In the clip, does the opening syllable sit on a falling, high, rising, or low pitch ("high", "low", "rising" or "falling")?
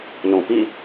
low